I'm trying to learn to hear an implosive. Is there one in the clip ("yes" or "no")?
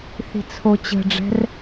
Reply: no